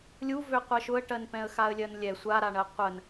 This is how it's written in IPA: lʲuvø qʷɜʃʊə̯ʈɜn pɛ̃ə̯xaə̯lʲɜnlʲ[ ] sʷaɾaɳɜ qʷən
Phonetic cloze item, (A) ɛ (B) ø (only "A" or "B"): A